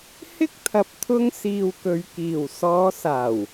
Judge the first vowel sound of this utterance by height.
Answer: high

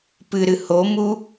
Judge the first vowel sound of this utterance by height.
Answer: high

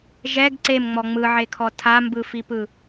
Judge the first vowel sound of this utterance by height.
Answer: mid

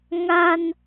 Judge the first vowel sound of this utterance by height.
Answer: low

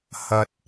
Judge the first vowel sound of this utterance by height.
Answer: low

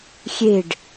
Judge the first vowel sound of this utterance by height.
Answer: mid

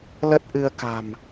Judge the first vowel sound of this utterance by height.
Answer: mid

